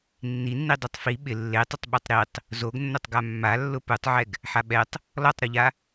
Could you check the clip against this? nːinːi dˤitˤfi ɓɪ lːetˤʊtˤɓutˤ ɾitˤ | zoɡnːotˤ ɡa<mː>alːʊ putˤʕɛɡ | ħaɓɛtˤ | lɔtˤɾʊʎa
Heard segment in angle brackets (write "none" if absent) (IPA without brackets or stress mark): mː